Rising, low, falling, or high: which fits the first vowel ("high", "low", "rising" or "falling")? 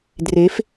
rising